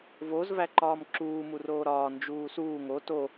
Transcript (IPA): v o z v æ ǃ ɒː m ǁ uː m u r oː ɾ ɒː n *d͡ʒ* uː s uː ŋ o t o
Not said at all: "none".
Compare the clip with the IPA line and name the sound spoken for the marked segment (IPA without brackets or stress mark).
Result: d͡ʒ